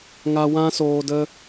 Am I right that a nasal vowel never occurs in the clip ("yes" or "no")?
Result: no